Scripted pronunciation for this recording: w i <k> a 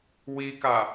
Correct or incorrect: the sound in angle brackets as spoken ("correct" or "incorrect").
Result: correct